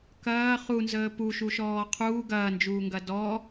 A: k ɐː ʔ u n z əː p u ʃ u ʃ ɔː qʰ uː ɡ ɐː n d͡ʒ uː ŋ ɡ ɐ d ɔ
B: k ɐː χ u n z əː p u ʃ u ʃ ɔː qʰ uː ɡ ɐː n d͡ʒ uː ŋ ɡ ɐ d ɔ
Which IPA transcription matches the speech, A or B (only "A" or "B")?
B